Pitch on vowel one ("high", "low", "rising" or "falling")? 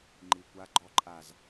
low